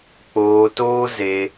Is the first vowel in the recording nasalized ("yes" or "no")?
no